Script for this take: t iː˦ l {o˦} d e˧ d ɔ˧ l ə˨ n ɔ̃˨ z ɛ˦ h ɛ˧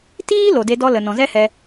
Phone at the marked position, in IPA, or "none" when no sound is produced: o˨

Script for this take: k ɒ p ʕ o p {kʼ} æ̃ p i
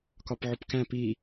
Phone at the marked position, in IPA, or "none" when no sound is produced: k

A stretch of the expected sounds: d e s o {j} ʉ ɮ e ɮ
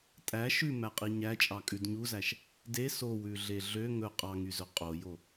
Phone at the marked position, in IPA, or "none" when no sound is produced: w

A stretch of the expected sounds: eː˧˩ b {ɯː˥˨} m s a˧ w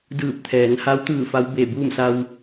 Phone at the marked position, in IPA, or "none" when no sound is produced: uː˥˨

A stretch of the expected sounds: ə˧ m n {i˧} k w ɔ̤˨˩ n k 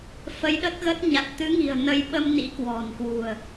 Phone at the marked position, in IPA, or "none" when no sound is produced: ḭ˧˥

